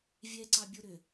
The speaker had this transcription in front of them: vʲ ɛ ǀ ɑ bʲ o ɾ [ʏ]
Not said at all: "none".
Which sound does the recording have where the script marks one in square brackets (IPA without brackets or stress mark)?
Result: ʏ